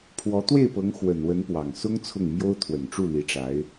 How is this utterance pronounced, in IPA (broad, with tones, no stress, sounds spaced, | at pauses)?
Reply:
pʰ w ɔ˧˥ t̪ w e˥˩ ɪ̯ p ɤ˧˥ ŋ x w ə˨˩ n w ə˧˥ n p w ɑ˨˩ ŋ s ʊ˥ ŋ t͡sʰ ʊ˥˩ ŋ m j o˥ ʊ̯ t̪ʰ w ə˨˩ n ʈ͡ʂ u˥˩ l i˧˥ ʈ͡ʂ a˧˥ ɪ̯